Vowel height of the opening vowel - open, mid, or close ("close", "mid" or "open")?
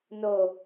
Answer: mid